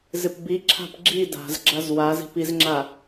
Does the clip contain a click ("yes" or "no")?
yes